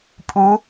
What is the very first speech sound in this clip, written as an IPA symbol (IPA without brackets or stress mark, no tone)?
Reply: pʼ